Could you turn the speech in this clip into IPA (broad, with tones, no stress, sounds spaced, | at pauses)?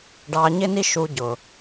ɖ ɑ˧ ɲ ɪ˥ n i˥ ʃ u˧ ɟ ʊ˩